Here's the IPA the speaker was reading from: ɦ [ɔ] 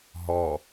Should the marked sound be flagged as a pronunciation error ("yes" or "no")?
no